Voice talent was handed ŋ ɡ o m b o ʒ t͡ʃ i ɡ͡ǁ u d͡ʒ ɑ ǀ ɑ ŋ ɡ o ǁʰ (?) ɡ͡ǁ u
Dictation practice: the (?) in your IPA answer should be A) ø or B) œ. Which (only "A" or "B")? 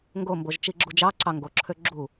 A